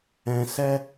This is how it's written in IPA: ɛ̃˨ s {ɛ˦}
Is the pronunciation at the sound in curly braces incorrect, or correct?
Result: correct